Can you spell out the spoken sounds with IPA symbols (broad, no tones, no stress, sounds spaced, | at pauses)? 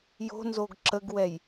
j o̤ n z o ɡ ǁ ə ɡ w ɛ j